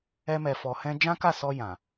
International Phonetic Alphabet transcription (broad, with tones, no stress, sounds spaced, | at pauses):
ɛ˧ m ɛ˨ f ɔ˨ h ɛ̃˧ d͡ʒ ã˦ k a˦˨ s ɔ˧ j ã˨